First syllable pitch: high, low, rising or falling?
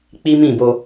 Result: high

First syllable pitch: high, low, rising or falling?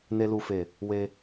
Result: low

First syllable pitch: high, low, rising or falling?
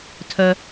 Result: low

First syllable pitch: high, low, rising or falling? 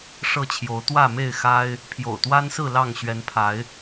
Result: falling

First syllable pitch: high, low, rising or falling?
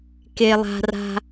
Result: high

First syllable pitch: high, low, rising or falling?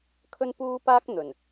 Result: high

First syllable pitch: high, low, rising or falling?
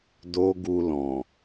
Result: high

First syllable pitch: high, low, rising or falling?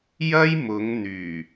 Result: high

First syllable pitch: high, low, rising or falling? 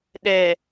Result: low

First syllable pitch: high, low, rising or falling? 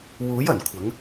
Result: rising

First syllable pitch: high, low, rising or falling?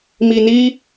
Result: low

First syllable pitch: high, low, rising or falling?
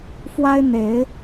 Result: high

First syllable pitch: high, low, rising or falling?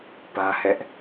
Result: high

